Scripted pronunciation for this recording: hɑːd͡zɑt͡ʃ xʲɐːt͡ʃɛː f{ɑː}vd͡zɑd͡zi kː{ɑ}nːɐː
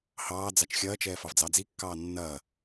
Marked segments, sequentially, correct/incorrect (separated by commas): incorrect, incorrect